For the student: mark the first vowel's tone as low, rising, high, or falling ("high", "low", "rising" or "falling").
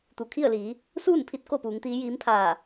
low